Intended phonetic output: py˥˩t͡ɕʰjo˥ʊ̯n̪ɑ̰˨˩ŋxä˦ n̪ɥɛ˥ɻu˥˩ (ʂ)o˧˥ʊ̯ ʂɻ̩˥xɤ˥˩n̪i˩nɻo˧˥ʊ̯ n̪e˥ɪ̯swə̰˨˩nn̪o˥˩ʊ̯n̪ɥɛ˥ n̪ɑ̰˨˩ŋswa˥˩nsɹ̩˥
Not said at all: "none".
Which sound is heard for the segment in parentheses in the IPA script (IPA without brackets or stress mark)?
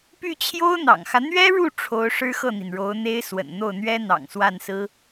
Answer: ʈ͡ʂʰ